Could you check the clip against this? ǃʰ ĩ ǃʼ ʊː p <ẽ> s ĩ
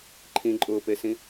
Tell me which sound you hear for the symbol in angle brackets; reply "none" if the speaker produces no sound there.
e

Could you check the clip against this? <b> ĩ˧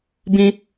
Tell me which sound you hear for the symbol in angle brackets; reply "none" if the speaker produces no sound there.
b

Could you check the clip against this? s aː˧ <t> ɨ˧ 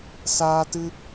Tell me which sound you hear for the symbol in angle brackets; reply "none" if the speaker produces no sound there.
t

